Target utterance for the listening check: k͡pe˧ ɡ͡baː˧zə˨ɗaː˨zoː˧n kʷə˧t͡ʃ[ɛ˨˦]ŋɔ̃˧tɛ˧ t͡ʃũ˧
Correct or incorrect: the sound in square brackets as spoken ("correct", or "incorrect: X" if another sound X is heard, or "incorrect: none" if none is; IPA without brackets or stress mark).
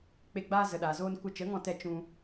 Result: incorrect: ə˨˦